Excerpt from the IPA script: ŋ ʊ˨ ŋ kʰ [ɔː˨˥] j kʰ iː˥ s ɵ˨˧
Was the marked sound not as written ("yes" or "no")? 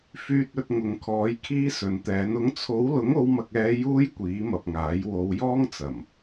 no